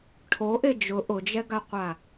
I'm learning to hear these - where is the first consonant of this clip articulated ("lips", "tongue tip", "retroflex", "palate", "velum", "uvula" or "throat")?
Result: retroflex